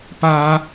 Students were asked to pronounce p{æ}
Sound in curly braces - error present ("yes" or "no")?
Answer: yes